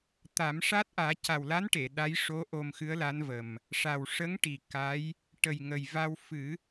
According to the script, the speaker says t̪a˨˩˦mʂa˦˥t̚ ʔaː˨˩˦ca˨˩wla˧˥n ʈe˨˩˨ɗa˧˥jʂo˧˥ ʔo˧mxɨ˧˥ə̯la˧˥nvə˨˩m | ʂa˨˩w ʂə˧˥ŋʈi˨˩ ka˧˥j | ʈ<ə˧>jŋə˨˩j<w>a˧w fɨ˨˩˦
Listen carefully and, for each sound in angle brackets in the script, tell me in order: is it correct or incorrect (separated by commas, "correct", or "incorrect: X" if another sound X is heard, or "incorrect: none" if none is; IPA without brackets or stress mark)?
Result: incorrect: ə˨˩, incorrect: v